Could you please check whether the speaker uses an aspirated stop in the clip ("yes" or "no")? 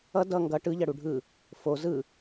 no